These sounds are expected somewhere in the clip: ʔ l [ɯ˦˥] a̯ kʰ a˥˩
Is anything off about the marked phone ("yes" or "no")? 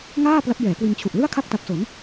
yes